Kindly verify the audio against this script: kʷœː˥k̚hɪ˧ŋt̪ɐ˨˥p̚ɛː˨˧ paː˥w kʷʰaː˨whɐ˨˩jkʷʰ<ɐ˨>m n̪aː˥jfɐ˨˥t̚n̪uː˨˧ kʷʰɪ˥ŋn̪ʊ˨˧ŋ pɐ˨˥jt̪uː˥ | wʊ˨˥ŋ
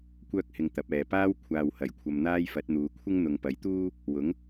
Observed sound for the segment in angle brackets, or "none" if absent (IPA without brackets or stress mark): ɐ˨